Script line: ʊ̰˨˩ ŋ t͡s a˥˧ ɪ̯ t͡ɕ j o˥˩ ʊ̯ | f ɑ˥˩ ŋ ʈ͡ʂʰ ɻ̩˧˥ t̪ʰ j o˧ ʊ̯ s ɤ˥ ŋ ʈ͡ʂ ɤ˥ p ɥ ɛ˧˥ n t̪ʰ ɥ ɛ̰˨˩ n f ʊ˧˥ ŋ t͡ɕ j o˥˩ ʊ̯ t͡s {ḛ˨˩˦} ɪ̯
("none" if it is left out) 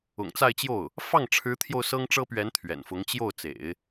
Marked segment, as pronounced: ḛ˨˩˦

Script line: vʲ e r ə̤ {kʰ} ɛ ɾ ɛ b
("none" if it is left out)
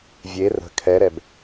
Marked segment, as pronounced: kʰ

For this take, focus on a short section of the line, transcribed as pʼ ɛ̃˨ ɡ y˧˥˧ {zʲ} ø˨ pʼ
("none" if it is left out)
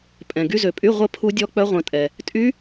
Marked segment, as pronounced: z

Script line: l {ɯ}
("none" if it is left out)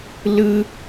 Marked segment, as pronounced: ɯ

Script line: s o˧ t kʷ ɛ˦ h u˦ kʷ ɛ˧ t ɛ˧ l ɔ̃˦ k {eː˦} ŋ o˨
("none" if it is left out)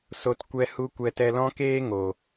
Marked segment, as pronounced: eː˦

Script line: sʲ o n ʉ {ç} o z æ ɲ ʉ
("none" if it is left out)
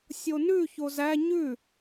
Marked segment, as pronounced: ç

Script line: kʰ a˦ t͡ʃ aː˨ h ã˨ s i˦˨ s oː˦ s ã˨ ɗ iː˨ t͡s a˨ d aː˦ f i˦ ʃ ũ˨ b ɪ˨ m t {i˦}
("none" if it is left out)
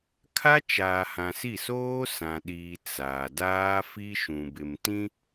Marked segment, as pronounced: ĩ˦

